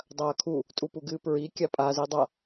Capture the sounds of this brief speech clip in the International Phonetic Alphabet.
dˤ ɐː kʰ u | tʼ u p u ɡ ɨː p ɹ i kʲ a pʼ a z i dˤ a

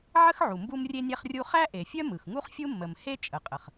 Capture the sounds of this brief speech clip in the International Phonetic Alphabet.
ʕ ə˥ x ʕ u˩ m b u˥ m rʲ e˥ nʲ ɛ˥ χ rʲ u˥ χ æ˥ ʔ e˩ fʲ œ˥ m ɯ˩ x ŋ u˥ χ fʲ u˥ mː ə˩ m h e˥ t͡ʃʼ ə˩ qʼ ə˩ χ

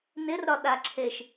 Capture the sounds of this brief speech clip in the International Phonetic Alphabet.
n ɪ r ɾ ɒ ɗ a ǁʰ e ʃ

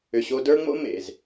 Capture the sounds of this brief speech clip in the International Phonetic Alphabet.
ʏ˨ ɕ o˧ d ə˞˦ ŋ͡m o̰˦ m ḛ˨ z

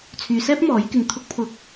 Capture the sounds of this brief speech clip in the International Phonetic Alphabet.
t͡sʰ yː˨ s ɛː˥ p̚ m ɔː˨˥ j k ɪ˧ ŋ t̪ʰ ʊ˧ k̚ pʰ ʊ˨˥ k̚

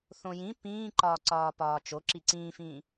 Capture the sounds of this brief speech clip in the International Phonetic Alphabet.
θ õ j ĩ p ĩː ǃ ɒː ǀ ɒː p ɒː t͡ʃ o ǁ i ǀ ĩː f ĩː

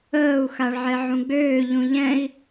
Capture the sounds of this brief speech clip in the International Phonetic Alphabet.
əː u̯ x a ɭ ʕ ɛ ʕ ũ ɡ͡b øː ʎ ũ ʎ ɛ̃ i̯

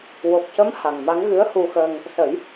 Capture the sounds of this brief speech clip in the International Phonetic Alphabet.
w o˨˩ k̚ c ə˧˥ m h a˨˩ ŋ m a˧˥ ŋ ɣ ɨ˧˥ ə̯ h u˧ x əː˧ ŋ | s ə˨˩˦ j

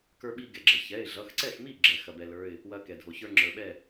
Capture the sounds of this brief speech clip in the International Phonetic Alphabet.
k ə˞˦ ɓ i˦ ɡ ɛ˩ ɡ͡ǁ ɐ˩ ç ɛ˩˧˩ ɪ̯ ɮ ʌ˩˧˩ x ǀ ɛ˥˩ x m i˥˩ ɡ͡ǁ ɛ˩ x ɐ˩ b ɛ˩ l ə˞˩˧˩ ɪ̯ | w ɐ˦ k ɛ˩ dʱ o˩ ç ə˞˦ ŋ͡ǁ ə˞˩ ɓ ɛ˥˩

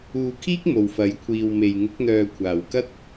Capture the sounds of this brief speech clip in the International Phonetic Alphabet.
uː˧ kʰ iː˥ k̚ m o˨ w f ɐ˨˥ j kʷʰ iː˨ w m e˨ j ŋ ɪ˨˥ k̚ n̪ œː˨ kʷʰ aː˨˩ w k ɐ˥ t̚

